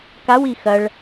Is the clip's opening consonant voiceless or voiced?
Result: voiceless